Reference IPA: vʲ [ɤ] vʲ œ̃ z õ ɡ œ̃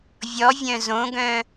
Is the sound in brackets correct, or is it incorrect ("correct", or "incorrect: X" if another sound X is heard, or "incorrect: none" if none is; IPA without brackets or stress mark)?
incorrect: ɔ